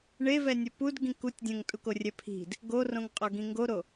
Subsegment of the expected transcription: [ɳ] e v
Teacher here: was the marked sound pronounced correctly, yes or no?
yes